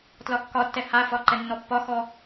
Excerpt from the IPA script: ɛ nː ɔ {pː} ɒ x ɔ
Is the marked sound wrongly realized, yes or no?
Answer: no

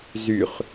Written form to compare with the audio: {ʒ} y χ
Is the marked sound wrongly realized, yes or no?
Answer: yes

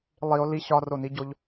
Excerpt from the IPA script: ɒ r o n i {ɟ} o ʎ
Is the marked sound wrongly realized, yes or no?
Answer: no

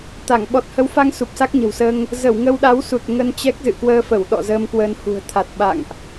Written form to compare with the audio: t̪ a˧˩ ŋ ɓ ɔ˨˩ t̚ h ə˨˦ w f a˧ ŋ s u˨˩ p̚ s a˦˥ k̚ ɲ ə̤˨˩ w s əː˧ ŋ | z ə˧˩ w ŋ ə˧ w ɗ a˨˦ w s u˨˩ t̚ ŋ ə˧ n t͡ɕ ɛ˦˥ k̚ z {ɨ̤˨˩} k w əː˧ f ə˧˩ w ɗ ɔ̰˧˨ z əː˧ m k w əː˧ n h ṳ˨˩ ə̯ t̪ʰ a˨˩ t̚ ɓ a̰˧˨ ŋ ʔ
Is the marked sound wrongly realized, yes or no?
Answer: yes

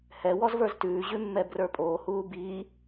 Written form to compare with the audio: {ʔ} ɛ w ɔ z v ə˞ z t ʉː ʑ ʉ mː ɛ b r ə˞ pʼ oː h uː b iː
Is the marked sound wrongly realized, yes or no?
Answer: yes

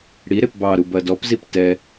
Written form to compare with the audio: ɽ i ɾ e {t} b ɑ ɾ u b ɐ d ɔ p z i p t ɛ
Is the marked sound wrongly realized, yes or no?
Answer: yes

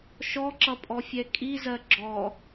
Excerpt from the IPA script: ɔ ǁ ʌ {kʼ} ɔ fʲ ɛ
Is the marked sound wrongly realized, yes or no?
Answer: yes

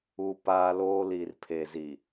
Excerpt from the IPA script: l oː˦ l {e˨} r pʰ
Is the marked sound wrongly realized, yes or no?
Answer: yes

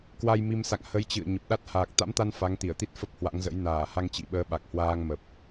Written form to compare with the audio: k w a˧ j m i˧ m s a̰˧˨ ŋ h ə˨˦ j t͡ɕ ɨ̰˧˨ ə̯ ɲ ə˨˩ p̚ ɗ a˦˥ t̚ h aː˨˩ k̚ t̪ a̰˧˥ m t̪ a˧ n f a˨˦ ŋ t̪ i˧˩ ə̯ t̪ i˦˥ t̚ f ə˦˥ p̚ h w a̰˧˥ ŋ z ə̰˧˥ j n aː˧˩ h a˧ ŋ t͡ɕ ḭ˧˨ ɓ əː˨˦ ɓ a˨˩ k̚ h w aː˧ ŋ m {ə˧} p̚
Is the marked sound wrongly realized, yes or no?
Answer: yes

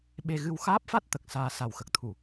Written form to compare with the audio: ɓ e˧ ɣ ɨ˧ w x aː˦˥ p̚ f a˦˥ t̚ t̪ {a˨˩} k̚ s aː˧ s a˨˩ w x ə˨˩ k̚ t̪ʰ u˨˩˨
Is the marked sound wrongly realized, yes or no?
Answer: yes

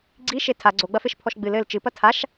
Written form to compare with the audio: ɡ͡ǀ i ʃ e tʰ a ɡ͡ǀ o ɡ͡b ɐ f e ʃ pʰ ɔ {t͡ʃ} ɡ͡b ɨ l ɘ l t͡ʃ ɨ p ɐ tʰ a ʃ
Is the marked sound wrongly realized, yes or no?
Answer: yes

